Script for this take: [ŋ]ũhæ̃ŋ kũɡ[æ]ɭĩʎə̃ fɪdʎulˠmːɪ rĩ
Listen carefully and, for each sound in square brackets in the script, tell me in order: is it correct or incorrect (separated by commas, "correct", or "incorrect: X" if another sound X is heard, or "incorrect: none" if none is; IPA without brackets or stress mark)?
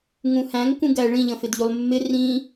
correct, correct